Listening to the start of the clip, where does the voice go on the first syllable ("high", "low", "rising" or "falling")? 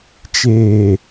low